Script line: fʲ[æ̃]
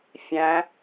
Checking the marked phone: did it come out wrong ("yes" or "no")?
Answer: no